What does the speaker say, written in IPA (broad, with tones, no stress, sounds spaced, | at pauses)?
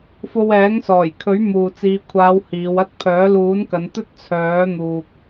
f o˧ w ɛː˨˥ ŋ s ɔː˨˩ j kʰ ɵ˨˥ ɥ m uː˨ t͡s iː˨˧ kʷʰ aː˨˧ w h iː˨˧ w ɐ˥ t̚ pʰ œː˨˥ l uː˨˥ n k ɐ˨˧ n t̪ ɵ˥ t̚ t͡sʰ œː˨˥ n̪ uː˨ k̚